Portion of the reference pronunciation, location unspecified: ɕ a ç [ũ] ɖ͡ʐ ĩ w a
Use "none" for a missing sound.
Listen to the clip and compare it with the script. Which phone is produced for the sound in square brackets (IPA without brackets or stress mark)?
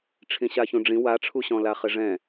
ũ